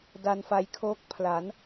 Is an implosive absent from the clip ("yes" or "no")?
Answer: yes